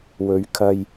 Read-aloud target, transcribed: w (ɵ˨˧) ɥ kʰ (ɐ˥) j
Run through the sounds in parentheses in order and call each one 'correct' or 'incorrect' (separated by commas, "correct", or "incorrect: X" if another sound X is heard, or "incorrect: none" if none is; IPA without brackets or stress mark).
correct, incorrect: ɐ˧